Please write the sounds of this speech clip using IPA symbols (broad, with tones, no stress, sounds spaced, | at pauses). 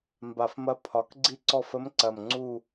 m b a˨˩ f m ɐ˧˥ pʰ ɒ˩˧ k ɡ͡ǀ i˦˨ ǀ ɔ˦˨ f ə˧˥ m ǀ ɐ˨˩ m ŋ͡ǀ u˦˨